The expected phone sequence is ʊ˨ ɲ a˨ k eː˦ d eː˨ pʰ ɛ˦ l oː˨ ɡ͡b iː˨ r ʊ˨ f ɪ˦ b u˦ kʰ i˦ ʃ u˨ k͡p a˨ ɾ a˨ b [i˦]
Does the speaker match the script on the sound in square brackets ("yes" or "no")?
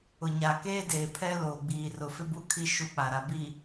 no